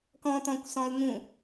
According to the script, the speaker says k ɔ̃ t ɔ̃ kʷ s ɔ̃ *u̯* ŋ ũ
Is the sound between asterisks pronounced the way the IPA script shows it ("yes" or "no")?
yes